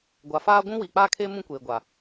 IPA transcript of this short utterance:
ɡʷa˨faː˦ ɡʷũ˦wiː˨k͡paː˦kʰeː˦ mũ˦kʷeː˨ɡʷa˨

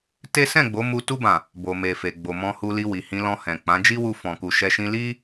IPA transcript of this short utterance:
te˦ sɛ̃˦˨ɡ͡bo˨˦mu˧ tu˧bã˨ | bo˨me˨ fe˨ɡ͡bo˨mɔ̃˧ hu˧li˧wi˨hĩ˧ lɔ̃˧hɛ̃˨k͡pã˨˦ d͡ʒi˦wu˧ fɔ̃˨ku˨ʃɛ˧ʃĩ˦ li˦

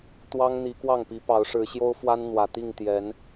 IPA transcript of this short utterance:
t̪wɑ˦ŋn̪i˨˦kwɑ˥˨ŋpi˨˦ pɑ˨˦ʊ̯ʂɻ̩˨˦ɕjo˦ʊ̯fwa˦n n̪wä˨˩ t̪i˥˨ŋt̪jɛ˨˦n

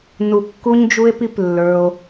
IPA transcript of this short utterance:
nu˨kːu˧ɲd͡ʒu˧e̯ pi˦plːə˞˧o̯

